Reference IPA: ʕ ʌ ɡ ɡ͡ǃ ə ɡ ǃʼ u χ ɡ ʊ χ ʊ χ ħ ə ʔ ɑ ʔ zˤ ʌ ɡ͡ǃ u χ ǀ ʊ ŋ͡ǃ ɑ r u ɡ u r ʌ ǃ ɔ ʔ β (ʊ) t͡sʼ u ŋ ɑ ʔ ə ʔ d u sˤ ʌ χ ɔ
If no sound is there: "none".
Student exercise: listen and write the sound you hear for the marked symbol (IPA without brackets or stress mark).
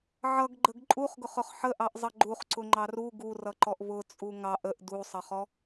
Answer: ʊ